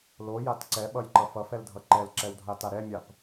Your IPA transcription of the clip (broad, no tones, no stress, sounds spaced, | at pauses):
l o j a t ǀ ɛ ɓ ʌ j ǃ ʌ f ʌ f ɛ l dʱ ʌ ǃ ɛ l ǁ ɛ w dʱ a t a ɾ ɛ mʲ a p